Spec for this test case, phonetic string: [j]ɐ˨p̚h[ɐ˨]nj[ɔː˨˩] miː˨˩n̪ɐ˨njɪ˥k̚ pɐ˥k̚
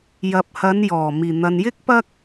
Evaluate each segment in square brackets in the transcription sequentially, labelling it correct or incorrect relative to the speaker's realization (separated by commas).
correct, incorrect, correct